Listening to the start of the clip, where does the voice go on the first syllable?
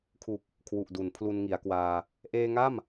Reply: low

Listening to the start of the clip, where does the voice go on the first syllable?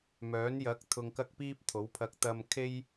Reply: rising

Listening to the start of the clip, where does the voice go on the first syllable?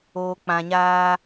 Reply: low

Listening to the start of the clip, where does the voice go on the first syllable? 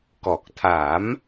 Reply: low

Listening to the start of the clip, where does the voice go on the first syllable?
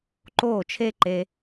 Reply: falling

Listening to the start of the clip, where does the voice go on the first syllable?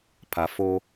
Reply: low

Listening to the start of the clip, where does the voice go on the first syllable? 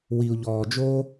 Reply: low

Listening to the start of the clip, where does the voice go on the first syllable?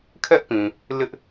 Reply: high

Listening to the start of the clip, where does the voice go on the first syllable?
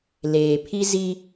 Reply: low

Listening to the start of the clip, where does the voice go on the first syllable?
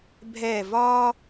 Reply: falling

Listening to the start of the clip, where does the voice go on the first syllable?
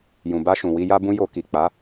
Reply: low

